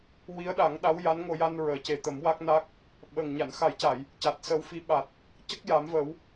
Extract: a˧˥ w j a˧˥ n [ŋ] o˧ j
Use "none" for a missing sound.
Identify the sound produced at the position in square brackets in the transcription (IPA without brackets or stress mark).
ŋ